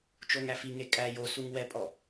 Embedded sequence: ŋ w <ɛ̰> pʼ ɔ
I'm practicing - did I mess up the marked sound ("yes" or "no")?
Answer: yes